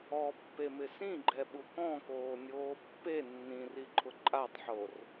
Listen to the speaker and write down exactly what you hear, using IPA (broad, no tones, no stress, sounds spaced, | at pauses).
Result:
ɔ pː e m ɪ s ĩ ɡ͡ǃ ɛ ɓ u k ɔ̃ k oː nʲ oː pː e nː ĩ r i ǃʰ ʊ ǃʼ a tˤ ħ o r